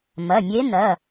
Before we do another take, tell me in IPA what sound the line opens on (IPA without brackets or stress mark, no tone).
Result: m